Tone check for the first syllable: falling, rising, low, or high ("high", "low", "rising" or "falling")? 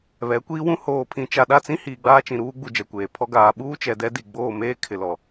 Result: rising